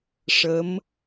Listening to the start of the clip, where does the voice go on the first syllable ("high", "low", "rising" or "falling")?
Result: rising